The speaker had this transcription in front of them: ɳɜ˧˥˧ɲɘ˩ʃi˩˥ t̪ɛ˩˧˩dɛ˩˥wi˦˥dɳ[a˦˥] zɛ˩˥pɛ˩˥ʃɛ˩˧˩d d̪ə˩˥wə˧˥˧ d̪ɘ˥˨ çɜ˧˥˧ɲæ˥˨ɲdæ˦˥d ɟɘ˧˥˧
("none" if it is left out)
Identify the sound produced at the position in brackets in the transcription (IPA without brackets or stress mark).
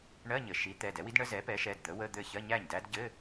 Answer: ə˦˥